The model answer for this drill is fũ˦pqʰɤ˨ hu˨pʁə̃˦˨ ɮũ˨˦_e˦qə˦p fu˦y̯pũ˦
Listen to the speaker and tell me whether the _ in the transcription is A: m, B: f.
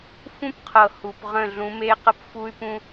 A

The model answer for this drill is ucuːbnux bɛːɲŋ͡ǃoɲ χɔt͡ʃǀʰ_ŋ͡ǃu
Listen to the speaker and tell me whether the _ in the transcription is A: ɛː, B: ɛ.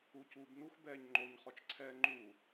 A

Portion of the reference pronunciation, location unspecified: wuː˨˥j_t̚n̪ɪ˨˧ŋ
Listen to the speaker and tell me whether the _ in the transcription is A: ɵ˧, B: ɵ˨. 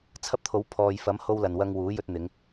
A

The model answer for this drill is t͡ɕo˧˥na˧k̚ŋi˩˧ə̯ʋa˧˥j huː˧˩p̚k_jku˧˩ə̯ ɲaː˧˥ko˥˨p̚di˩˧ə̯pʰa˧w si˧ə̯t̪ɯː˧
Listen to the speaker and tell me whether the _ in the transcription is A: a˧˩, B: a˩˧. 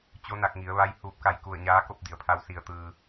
A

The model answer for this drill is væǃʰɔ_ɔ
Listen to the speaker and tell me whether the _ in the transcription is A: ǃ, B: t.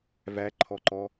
A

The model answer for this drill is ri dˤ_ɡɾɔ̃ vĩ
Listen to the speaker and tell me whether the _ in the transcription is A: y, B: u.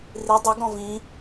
A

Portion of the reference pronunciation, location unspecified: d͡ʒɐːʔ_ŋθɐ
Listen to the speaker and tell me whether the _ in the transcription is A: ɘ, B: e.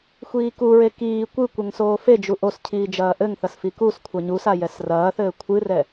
A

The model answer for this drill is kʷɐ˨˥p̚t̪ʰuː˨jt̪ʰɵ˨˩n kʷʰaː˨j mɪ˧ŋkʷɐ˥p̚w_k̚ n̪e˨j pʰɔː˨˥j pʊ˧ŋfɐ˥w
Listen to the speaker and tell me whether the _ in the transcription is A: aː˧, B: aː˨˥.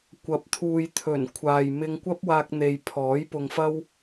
A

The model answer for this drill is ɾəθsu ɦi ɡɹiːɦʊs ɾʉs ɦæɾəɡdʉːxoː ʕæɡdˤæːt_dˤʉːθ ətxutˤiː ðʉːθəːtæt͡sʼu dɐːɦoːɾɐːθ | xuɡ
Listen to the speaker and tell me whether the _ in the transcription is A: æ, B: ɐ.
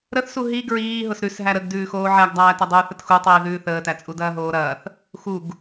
B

